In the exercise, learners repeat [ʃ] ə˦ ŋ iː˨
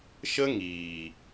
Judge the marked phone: correct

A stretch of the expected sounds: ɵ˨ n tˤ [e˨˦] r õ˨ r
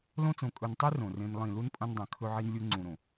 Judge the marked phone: incorrect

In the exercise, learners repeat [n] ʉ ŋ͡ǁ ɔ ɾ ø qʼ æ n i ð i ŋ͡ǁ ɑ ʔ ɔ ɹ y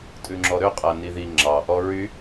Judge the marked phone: incorrect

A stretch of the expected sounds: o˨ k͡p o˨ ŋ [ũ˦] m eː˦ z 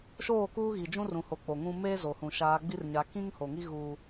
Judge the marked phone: correct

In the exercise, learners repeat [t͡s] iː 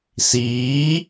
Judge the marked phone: incorrect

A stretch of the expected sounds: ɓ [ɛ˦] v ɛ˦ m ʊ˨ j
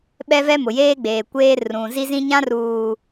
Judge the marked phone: correct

